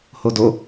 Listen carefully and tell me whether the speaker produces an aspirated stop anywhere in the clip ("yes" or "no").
no